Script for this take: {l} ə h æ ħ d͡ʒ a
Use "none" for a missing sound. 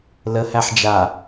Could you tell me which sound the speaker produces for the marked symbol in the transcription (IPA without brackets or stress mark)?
l